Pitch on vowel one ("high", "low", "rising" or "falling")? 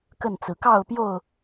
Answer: falling